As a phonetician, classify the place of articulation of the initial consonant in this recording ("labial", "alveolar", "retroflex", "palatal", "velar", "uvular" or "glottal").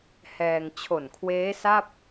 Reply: glottal